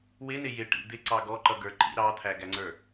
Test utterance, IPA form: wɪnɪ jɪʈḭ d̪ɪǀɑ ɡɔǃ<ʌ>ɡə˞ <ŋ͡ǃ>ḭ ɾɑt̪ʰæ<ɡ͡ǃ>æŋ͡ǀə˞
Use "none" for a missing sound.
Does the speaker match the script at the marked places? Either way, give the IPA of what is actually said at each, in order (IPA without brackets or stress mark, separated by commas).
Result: ʌ, ǃ, ɡ